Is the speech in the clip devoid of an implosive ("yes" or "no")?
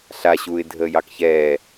yes